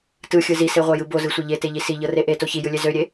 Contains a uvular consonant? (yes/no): yes